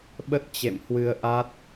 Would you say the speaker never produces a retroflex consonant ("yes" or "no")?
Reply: yes